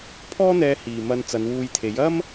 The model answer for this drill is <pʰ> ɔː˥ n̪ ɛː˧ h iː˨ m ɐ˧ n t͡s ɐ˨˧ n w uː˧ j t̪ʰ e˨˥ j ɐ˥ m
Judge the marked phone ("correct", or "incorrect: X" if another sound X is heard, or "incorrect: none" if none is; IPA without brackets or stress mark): correct